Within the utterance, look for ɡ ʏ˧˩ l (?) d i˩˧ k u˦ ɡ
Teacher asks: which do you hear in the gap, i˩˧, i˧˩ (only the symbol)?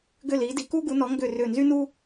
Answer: i˩˧